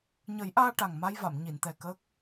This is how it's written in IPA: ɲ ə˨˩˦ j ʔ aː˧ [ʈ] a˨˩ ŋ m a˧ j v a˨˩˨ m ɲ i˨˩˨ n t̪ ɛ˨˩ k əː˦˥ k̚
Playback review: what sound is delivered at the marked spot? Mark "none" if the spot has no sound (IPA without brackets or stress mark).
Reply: ʈ